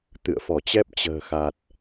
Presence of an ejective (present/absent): absent